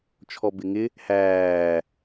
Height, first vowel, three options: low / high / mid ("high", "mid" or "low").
mid